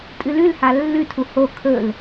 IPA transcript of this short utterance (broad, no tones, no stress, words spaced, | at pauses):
tʼɨlʉlha lːʉtʰu ho kʰɵl